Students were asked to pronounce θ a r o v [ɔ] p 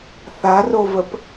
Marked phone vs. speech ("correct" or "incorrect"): incorrect